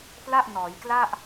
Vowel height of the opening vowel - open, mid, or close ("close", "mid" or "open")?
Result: open